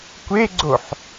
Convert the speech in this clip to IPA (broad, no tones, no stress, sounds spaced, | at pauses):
kʷ e ɡ͡ǀ o ħ